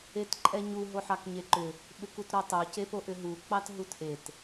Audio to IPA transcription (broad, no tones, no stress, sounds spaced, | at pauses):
e t ǃʼ ɛ ɲ u ɦ o ħ ɑ k ɲ e ǃ ʏ | ɓ ʏ k u t ɾ o tˤ o c e p o ʔ ʏ ɦ u k͡p ɑ t ɦ u t ʔ e t